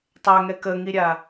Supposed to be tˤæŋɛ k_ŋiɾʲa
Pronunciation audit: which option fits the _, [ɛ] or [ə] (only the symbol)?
ə